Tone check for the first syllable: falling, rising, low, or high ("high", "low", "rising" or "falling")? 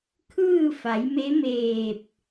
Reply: falling